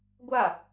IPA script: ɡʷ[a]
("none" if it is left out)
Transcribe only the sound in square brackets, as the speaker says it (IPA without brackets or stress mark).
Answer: a